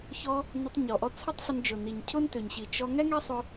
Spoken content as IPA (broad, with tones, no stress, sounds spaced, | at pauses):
ç ɔ˧ | n ʊ˧ tˤ ɲ ɔ˨ ʔ ɔ˧ t͡sʰ ʊ˦ tˤ ɬ ʊ˧ n d͡ʒ ʊ˨ n i˨ ɲ cʰ ʊ˦ n t ʏ˨ ɲ ɕ i˨ t͡ʃ ɔ˧ ŋ ɛ˦ ŋ ɛ˦ sˤ ʏ˧